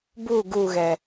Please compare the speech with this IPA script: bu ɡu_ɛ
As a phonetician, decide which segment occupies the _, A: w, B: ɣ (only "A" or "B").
B